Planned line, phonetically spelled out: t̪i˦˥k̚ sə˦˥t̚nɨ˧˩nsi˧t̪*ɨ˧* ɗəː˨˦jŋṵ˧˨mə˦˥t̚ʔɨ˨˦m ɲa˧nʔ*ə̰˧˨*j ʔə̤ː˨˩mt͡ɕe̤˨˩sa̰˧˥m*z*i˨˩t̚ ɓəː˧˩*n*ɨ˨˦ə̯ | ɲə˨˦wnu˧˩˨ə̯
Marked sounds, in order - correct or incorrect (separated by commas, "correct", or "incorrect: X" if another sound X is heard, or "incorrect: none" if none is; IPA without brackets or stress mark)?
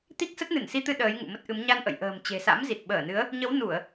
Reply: correct, correct, correct, correct